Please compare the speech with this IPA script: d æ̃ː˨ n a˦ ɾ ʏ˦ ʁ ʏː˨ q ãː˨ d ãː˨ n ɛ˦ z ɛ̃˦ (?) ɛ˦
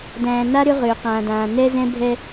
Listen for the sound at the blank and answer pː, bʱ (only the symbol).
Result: bʱ